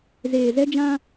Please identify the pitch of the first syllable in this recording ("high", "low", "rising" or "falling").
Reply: low